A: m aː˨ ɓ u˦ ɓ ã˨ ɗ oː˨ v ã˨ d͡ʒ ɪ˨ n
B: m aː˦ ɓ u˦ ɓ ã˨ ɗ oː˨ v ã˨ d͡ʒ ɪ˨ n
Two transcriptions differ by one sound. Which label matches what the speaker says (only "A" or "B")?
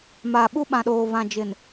A